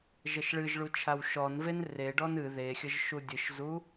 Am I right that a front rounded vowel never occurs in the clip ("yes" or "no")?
yes